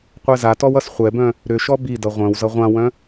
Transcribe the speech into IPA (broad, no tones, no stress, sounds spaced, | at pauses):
qʷ ɛ z a t ɔ w ʌ s χʷ ɛ b œ̃ | ɾ ʏ ʃ ɔ b i d ʌ ʁʷ œ̃ w z ʌ ʁʷ ã w œ̃